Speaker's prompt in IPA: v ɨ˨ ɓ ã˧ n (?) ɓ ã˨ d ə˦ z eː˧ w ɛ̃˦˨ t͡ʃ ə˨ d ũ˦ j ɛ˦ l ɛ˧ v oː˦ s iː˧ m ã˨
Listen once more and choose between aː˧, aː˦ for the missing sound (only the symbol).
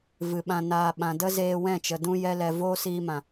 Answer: aː˧